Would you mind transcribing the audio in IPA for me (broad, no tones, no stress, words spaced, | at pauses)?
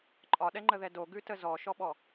ǃʼɒɗɛŋ͡ǃəðɛ doɡʉtə zɔʃɔɓɔ